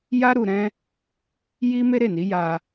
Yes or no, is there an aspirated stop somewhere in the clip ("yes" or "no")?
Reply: no